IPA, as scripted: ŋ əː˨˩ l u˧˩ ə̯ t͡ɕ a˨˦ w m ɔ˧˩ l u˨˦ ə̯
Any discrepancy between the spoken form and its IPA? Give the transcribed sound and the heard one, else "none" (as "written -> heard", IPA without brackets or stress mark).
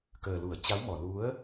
ŋ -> k